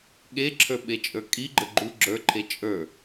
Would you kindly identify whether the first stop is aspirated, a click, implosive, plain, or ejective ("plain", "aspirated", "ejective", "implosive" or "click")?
implosive